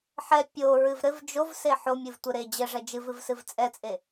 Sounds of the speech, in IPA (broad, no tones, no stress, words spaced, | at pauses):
ħɛ pʲoɹɨv ɾɘv d͡ʒovse ħomʲɨvtʷɘ ɾe d͡ʑɘʐɛ d͡ʒɨvɨvsɨv t͡sʼɛt͡sʼe